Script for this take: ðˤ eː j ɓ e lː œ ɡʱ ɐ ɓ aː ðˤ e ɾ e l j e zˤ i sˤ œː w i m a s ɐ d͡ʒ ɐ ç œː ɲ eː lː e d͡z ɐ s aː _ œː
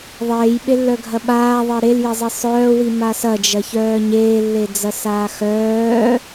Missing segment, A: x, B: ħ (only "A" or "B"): A